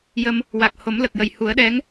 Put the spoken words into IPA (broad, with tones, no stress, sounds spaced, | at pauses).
j ə˧ m | w a˨˩ k̚ h o˨˩˦ m l ə˨˩ k̚ j ə˨˩ j h u˨˩˦ ə̯ ɗ ɛ˧˥ ŋ